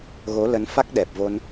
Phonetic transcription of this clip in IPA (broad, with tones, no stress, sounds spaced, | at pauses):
ɣ o˨˦ l ə˨˦ n f a˦˥ k̚ ɗ ɛ˨˩ p̚ v o˧ n